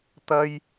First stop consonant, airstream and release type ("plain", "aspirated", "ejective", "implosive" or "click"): plain